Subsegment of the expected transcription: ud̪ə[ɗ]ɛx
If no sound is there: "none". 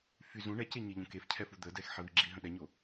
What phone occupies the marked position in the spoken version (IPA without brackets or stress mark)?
d